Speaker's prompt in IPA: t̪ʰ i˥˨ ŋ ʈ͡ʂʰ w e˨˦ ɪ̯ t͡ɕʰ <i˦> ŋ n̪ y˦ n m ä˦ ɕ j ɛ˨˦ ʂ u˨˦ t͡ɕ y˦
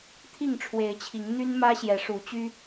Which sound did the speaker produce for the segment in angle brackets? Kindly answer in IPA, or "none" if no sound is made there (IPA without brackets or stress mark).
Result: i˨˦